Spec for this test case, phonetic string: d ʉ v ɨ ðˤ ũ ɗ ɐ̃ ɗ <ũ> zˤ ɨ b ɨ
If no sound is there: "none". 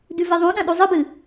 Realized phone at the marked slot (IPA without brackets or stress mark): u